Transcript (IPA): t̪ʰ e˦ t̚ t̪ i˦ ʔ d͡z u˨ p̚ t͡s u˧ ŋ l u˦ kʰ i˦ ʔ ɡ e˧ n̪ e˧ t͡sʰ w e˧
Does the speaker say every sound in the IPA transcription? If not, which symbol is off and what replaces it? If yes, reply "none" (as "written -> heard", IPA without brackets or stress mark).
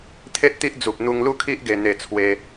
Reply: t͡s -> n̪